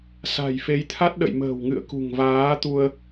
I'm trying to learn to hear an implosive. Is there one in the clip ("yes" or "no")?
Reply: yes